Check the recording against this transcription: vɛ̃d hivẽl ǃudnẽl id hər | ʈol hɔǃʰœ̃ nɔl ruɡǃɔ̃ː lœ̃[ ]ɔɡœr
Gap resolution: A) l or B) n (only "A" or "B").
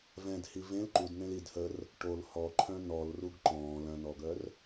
B